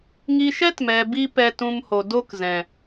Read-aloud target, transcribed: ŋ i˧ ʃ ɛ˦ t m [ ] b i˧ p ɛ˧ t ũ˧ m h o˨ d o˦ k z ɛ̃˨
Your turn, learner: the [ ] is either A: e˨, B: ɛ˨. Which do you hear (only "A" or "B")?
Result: B